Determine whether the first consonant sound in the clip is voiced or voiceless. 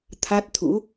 voiceless